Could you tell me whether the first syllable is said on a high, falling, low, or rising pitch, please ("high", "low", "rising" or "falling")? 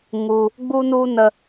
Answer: low